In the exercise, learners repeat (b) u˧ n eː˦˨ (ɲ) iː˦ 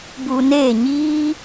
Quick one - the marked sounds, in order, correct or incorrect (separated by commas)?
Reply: correct, correct